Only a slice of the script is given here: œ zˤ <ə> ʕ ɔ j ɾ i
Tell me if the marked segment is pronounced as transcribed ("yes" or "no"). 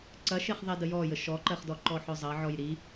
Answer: no